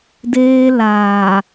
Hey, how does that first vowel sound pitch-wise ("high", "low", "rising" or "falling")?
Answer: high